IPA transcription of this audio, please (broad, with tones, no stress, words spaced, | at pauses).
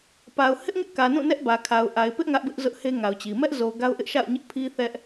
pa˨ʊ̯ hɪ˦ʔŋɪ˦ʔkä˨ nũ˦˨nɛ˦ʔbä˨kʰa˨ʊ̯ ʔa˨ɪ̯pɪ˦ʔ ŋä˦ʔbɪ˦ʔzʊ˦ʔhe˦ ŋa˨ʊ̯t͡ɕi˨ mɛ˦ʔ zo˨ ɡa˦ʊ̯ʔɪ˦ʔ ʃa̰˦˨ʊ̯ɲɪ˦ʔ pʰi˦θɛ˦ʔ